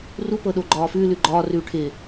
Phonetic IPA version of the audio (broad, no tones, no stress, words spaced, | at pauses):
rupɤ ɗoɡ͡ǃɒːfʉːlʉ ɡ͡ǃɒːrʉː ʈʰɪ